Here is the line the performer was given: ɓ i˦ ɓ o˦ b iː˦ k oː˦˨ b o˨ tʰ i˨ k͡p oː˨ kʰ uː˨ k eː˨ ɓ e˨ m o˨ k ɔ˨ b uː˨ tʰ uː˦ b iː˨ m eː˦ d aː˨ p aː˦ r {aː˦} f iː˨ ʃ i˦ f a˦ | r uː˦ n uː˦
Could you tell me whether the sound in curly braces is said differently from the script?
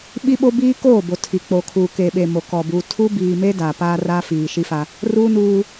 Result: no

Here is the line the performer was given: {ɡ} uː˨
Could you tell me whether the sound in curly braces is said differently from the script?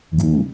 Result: no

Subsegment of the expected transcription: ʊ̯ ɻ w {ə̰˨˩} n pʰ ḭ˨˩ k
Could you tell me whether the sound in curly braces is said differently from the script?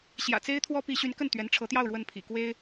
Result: yes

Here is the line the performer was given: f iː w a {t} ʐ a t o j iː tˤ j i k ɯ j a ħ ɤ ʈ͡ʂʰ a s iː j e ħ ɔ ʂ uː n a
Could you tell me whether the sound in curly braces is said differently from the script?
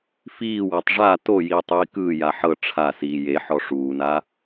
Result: yes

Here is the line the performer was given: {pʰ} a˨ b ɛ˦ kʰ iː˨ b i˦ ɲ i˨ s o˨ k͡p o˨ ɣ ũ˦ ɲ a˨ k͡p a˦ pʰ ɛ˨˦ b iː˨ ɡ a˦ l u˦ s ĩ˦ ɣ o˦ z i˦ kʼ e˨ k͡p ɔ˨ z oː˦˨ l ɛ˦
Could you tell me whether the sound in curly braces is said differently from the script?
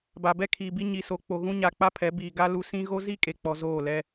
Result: yes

